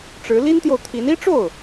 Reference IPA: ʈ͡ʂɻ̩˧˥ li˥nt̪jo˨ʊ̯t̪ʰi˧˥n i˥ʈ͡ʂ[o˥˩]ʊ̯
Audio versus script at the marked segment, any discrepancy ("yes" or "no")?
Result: no